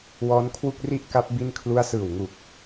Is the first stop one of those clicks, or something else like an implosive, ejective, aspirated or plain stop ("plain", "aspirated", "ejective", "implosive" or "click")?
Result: aspirated